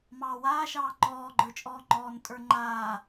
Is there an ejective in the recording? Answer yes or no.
yes